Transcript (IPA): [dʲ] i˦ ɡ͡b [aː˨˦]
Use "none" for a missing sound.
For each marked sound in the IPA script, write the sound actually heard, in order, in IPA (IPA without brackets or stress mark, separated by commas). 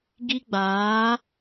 ɡ, aː˨˦